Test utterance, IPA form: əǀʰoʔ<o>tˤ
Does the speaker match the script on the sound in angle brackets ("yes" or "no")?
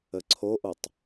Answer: yes